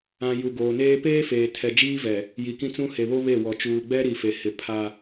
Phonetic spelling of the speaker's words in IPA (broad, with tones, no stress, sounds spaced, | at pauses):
ã˨ j u˨ ɡ oː˨ n eː˦ p eː˦ f eː˨ tʰ ɛ˨ d͡ʒ iː˦ v ɛ˨ | j i˨ k ĩ˦ t͡s ũ˦ h e˨ β o˦ β e˦˨ w ɔ˨ t͡ʃ uː˨ ɡ͡b ɛ˦ ɾ i˨ f e˨ h ɪ˨ pʰ a˦